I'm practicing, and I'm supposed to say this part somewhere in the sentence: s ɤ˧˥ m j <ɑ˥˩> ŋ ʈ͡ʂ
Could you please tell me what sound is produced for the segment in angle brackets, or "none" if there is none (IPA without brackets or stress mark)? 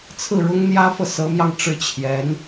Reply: ɑ˧